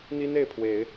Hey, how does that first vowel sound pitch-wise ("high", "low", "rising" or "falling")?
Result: high